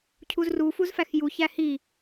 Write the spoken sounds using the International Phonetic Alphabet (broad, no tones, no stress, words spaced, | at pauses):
cʰuzru fuzfæxju çæhi